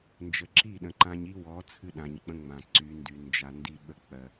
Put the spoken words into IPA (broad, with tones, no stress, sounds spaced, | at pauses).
n d͡ʒ ə˨ ǁ i˦˨ ɗ ə̃˨ ǃ ã˦ ɲ i˦ w ɔ˨˦ t͡sʰ ɨ˦ ɗ ã˨ ɲ k͡p ə̃˦ ŋ͡m ã˨ ǀ y˨˦ n d y˨ n d͡ʒ a˨ n d i˦ ɓ ə˦ k͡p ɜ˨